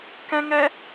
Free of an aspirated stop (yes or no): yes